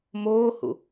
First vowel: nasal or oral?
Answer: oral